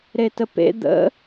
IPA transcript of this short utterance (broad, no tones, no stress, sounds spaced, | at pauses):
ɾ e t ə p ḛ d̪ ə̰